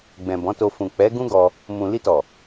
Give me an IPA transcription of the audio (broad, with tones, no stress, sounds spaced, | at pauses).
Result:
ɡ͡b ɛ̃˨ b ɔ̃˨˦ t o˧ f ũ˨ k͡p ɛ˨˦ ɡ ũ˦ ɡ ɔ˧ | m ũ˨ l i˧ t ɔ˨